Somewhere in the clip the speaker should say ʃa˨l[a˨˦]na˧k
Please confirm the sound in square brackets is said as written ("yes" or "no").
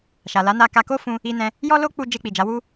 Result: yes